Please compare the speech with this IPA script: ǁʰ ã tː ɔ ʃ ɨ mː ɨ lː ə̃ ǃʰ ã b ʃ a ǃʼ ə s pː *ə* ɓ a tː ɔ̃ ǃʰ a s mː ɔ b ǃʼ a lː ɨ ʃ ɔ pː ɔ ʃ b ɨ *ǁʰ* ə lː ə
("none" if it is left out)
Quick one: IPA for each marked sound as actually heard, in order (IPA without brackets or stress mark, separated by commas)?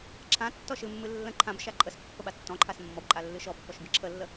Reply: ə, ǁʰ